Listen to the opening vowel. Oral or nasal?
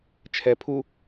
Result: oral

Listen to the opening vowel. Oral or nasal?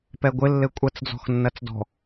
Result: oral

